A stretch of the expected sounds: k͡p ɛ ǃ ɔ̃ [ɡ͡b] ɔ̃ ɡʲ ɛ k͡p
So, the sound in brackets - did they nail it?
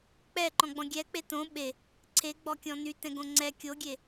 yes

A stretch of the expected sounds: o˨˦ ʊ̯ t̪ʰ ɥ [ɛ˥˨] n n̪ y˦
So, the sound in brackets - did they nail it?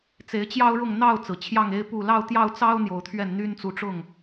yes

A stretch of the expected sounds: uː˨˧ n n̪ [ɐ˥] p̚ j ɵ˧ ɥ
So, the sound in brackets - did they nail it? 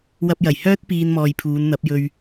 no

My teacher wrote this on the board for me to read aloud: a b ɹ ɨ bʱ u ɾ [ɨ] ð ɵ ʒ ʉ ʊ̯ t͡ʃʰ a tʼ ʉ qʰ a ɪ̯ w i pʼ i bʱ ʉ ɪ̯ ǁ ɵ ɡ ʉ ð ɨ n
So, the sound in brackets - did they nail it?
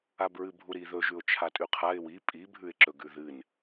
no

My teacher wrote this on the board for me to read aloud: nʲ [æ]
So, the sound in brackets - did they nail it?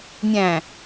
no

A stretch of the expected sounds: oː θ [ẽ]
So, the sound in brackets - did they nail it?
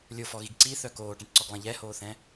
no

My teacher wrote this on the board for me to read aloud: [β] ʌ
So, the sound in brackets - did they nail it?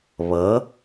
yes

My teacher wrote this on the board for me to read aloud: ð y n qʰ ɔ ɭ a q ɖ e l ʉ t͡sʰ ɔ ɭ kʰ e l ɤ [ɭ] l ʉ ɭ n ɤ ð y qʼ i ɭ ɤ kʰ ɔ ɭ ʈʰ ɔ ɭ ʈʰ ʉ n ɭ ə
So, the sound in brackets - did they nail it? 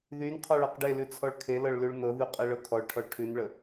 yes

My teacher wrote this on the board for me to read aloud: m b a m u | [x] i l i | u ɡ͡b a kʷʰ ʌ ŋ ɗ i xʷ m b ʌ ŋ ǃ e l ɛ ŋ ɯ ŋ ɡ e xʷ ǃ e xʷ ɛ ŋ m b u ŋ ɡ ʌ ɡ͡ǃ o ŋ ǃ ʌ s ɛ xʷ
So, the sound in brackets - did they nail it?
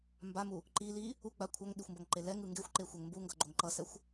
no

